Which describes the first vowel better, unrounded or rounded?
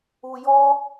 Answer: rounded